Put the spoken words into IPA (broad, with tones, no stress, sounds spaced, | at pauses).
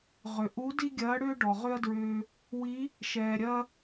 ʁ ʏ˩ ʔ u˧˥ d i˥ ɡʲ ɐː˧˥ ɽ ʏː˥ ɖ ɔ˩ ʁ ʏ˥ ɐ̯ d ɹ ʏː˧ | w i˧˥ | ʃ ɛː˩ ɾʲ ɐ˧